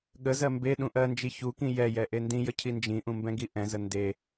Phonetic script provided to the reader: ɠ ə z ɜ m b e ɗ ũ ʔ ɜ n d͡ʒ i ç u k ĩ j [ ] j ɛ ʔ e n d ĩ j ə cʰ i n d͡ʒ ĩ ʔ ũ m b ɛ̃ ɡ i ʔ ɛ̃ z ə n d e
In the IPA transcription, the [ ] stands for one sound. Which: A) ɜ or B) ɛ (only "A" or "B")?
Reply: B